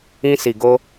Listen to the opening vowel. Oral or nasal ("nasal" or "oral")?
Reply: nasal